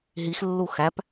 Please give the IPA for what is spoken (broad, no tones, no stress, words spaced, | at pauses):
ɦixlːu xæp